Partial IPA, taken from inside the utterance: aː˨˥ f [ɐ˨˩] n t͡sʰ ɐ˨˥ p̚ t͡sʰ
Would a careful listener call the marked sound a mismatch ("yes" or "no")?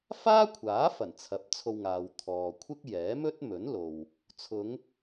no